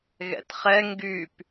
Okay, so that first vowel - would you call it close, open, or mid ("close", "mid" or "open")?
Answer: mid